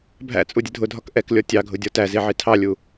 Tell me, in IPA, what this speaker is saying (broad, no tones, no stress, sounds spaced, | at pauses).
bʱ æ̰ t͡sʼ u dʲ ə dʱ ʊ dʱ ɒ k ʔ ɛ k lʲ ɔ tʲ ɑ ɡʱ ʊ dʲ ɔ t æ z i ʕ i tʰ ɑ lʲ u